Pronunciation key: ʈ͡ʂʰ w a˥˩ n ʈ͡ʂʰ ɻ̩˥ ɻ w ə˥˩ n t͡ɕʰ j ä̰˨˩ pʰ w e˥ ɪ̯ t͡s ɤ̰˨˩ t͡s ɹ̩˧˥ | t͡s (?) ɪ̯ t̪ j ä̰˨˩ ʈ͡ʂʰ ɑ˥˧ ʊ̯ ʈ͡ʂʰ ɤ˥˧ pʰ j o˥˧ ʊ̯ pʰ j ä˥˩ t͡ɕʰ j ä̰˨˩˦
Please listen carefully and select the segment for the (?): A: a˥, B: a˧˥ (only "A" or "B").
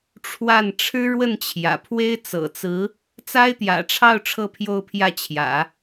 A